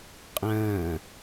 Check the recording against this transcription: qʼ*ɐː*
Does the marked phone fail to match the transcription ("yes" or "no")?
yes